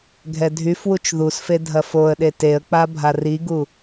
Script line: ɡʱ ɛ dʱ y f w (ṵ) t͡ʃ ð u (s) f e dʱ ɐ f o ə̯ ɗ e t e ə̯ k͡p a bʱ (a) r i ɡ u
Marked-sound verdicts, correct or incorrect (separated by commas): incorrect, correct, correct